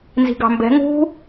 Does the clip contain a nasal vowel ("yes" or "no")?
no